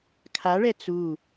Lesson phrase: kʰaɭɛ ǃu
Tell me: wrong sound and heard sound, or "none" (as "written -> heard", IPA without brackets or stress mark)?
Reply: ǃ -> t͡s